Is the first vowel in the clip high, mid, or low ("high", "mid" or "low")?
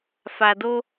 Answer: low